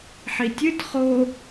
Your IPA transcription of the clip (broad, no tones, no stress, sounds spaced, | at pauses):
ħ i tʲ ɨ t χ o